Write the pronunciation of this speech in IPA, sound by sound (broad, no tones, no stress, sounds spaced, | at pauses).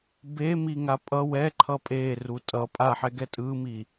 b e m i ŋ a pʼ ʌ w ɛ ǃʰ ʌ pʼ e r u tʼ ʌ pʼ a ħ ɛ ɡ ɛ tʼ ɯ m i